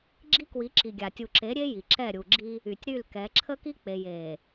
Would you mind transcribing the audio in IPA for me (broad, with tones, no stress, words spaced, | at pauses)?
ɡ͡ǁi˦kwi˨˦ǁi˨ɡʲa˨ tʲu˨ǁe˨˦ ɾʲe˦ ji˨ǁɛ˦˨ɾʲu˨ɡ͡ǁi˦ | y˨tʲɾy˦˨lkɛ˨˦ ǁʰə˦ki˦k͡pe˨j e˨